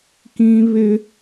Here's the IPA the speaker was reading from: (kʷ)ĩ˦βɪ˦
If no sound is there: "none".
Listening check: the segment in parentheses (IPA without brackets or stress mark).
k